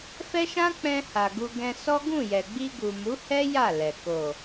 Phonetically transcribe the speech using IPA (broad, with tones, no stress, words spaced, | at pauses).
fɛ˦ʃã˦ k͡pɛ̃˧ha˨ ɡu˧ ɡɛ̃˧sɔ˦ ɡũ˦˨jɛ˨ ɡ͡bi˧ɡu˨mu˨˦hɛ˦ ja˦˨lɛ˨ ko˨